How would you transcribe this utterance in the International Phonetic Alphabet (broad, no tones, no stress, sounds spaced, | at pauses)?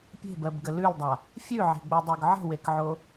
pʲ e̤ b ɜ b ɡ ə l ʉ l dˤ a | fʲ ʉ ʕ e̤ ɡ͡b o dˤ o ɡ ʕ ə̤ w e k ʕ o